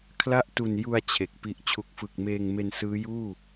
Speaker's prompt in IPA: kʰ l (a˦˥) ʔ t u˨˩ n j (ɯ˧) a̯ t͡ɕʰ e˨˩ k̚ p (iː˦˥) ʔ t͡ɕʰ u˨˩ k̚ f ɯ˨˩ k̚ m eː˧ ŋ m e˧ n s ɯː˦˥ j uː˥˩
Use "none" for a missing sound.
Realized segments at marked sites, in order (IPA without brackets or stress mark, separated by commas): a˥˩, u˧, i˦˥